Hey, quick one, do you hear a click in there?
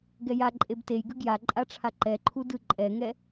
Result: yes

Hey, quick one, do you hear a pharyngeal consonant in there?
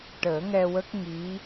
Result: no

